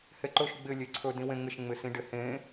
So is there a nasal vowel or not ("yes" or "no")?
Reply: yes